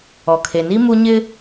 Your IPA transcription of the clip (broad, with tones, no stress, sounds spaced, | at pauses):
ɔ˨ kʰ e˨ n i˦ m u˦ ɲ ɪ˦